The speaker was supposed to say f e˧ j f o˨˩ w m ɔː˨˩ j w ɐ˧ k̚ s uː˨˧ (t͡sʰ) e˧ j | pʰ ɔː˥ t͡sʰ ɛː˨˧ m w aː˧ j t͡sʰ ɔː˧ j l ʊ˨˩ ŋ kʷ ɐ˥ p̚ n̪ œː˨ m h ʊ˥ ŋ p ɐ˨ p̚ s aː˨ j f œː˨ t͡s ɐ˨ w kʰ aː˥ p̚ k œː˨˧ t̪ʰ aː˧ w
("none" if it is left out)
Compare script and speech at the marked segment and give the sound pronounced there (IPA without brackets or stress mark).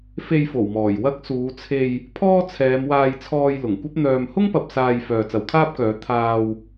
t͡sʰ